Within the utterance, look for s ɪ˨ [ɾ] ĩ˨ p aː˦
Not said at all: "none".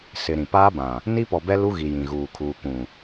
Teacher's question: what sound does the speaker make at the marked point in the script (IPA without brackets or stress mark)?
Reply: ɾ